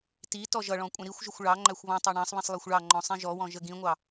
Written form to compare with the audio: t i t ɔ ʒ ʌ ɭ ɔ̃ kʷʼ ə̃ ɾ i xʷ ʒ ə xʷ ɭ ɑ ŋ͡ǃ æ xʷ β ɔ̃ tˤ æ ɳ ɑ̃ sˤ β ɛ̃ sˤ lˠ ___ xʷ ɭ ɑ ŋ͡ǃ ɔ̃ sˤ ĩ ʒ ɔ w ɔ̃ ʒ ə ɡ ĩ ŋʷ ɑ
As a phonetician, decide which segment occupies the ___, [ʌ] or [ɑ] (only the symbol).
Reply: ɑ